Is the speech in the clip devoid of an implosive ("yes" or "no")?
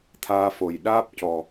no